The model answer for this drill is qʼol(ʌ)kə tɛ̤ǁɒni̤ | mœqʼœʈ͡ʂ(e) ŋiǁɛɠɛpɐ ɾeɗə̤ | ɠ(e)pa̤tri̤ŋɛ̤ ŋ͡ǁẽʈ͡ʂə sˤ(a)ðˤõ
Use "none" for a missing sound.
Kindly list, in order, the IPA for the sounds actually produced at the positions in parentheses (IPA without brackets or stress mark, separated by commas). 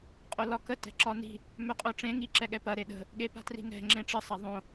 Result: ɒ, ẽ, e, a